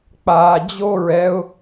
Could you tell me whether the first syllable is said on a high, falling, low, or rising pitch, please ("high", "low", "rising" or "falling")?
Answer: low